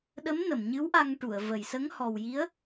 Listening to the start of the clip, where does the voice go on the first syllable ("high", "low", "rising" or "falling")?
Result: rising